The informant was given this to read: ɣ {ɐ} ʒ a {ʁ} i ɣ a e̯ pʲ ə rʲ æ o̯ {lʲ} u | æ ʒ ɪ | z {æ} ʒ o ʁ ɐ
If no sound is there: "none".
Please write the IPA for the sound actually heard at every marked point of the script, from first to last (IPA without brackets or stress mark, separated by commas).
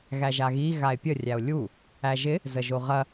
æ, ɣ, lʲ, ə